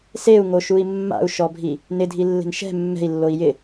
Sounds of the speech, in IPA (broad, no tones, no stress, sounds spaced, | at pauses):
s e u̯ ŋ o ʃ u i̯ mː a̰ u̯ ʃ ɔ bʱ i | n ɪ dʱ i lː e̤ n ʃ ɛ̤ mː ɛ̤ i̯ lː o i̯ j ɪ